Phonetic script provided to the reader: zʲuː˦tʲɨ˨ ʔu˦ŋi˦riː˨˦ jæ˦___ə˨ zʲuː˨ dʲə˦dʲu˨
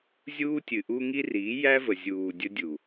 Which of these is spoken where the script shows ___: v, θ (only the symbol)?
v